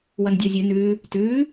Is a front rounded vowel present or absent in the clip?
absent